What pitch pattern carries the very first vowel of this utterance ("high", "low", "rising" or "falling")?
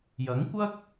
rising